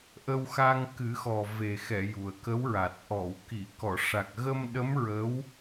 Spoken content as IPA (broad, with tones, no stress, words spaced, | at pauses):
ʔə˧wxa˧ŋ kɨ˨˩˦xɔ˨˩ ve˨˩xɛ˨˩˨ ju˨˩ə̯kə˧˥wɹa˨˩t̚ ʔɔ˨˩˨wki˨˩˨ kɔ˨˩˨ʂa˨˩k̚ɣə˧m ɗə˧˥m ɹə˧˥w